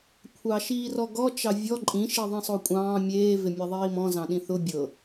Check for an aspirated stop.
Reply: present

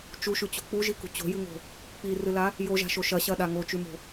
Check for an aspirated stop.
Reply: absent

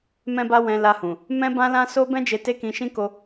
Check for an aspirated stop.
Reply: absent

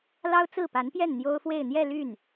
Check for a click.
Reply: absent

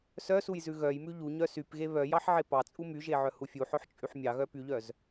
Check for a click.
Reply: absent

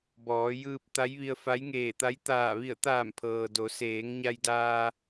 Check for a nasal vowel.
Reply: absent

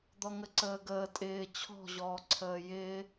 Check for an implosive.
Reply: absent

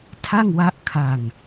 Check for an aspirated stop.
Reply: present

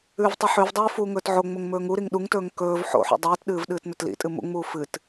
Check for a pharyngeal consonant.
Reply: present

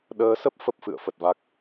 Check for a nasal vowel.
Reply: absent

